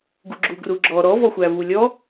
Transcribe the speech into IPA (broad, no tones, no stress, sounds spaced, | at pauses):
ɡ u ɡ͡ǁ u ɡ r u ɡ͡ǁ ɔ ɾ ɔ v ɔ xʷ æ v u lʲ ɔ